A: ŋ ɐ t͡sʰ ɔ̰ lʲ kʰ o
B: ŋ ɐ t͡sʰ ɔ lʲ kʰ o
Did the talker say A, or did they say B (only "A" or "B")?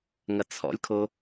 A